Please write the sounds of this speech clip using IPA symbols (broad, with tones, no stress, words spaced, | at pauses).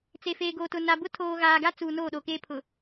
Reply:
t͡se˨feː˨ɡoː˨tʊ˨ na˨bʊ˦ tʰoː˨ɣaː˨ɡa˦ t͡suː˨ noː˦˨ɗo˨keː˦ pʰʊ˨